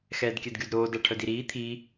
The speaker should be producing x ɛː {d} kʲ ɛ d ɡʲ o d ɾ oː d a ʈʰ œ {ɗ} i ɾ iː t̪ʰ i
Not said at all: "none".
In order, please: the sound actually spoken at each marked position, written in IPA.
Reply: d, d

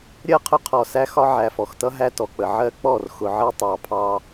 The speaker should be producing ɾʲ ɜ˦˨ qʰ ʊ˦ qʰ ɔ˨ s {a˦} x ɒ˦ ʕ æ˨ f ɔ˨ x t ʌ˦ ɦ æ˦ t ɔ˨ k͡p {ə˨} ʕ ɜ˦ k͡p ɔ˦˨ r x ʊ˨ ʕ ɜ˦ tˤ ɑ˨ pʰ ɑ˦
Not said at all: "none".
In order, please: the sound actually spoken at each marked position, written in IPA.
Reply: æ˦, ə˨

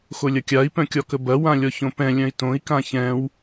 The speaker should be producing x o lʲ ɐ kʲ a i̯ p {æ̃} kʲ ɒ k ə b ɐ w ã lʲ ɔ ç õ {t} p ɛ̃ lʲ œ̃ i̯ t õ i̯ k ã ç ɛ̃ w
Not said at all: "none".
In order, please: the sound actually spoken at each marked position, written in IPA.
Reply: œ̃, none

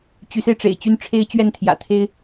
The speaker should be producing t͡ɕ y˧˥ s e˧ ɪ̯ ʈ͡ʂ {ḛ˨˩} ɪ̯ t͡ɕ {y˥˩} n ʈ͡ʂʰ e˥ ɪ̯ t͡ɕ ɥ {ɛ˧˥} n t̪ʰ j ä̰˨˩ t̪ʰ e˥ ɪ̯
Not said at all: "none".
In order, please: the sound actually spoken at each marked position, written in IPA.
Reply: ḛ˨˩, y˥˩, ɛ˥˩

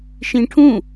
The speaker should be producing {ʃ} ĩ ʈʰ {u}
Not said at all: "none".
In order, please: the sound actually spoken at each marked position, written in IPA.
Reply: ʃ, ũ

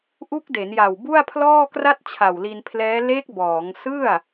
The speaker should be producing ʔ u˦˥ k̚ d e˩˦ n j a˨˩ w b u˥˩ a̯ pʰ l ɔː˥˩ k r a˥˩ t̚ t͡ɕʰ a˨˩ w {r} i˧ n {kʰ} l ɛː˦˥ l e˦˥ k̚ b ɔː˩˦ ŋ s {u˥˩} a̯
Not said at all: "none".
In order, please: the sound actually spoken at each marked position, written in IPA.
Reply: l, pʰ, ɯ˥˩

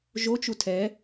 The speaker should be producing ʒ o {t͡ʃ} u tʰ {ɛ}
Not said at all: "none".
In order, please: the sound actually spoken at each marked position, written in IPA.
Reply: t͡ʃ, ɛ

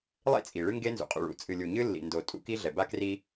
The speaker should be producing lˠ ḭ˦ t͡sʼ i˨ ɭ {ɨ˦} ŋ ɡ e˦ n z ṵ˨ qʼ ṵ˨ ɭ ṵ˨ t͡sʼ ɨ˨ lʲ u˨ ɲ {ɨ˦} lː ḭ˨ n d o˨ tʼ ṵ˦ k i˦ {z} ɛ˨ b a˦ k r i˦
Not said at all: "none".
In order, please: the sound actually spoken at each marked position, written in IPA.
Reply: ɨ˦, ɨ˦, ɮ

